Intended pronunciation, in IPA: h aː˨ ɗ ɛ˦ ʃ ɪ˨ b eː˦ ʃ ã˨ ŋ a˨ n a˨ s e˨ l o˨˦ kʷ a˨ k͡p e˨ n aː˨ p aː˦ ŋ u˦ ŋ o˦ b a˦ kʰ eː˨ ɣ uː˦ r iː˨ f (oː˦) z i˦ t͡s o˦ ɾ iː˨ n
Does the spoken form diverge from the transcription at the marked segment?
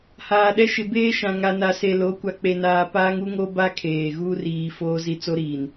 no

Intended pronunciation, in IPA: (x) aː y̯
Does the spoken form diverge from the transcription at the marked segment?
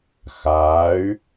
no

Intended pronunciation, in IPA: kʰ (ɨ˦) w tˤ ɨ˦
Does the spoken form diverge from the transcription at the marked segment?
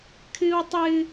no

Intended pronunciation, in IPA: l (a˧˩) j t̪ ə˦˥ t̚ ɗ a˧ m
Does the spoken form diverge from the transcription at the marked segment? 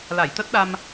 no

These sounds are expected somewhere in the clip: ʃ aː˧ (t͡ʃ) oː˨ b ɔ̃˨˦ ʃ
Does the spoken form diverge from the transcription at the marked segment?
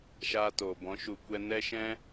yes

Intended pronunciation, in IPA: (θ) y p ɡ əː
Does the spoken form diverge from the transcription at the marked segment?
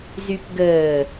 yes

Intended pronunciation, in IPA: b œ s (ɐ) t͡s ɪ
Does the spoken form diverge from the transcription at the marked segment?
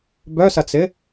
no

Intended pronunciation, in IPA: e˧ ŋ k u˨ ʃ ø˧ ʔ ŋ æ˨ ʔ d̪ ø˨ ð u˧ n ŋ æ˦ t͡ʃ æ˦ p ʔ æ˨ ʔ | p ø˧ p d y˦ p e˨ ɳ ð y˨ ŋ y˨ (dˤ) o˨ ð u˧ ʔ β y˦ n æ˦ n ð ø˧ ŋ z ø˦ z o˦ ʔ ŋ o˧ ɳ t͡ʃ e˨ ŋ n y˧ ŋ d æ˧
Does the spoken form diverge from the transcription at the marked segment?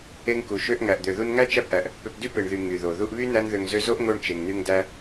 yes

